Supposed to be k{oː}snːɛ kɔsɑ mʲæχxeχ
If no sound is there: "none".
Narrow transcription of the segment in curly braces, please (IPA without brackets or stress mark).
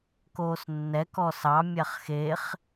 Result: oː